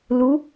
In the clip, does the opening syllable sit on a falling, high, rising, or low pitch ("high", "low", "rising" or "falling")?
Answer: rising